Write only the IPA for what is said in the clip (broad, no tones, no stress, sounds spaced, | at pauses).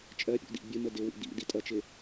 t͡ʃʼ ɜ pʲ ṵ d ḭ bʲ ə m ə d ɪ w ḭ d ḭ d i tʼ ʌ t͡ʃ ɪ